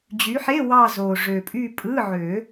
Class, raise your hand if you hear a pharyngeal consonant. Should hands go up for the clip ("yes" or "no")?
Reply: yes